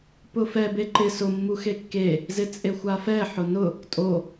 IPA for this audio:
p ʊ f ɛ b e ǃ ɪ s ʊ mː u x e kː e | z ɪ t͡sʼ e xʷ a f ɛ ħ ʊ n ʊ | tʼ o

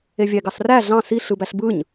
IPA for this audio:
e vʲ æ ɡ ɑ s r æ ɮ ɑ̃ s i ɬ ɯ b æ ɬ b ɯ ɲ

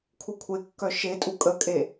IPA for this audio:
kʰ u kʷʰ e kː œ ʃ e tʼ u kʼ ə kʼ e

